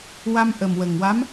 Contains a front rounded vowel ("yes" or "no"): no